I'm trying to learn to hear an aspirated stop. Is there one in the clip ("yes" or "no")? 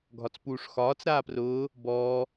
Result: no